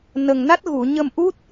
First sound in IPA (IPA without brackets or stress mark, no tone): n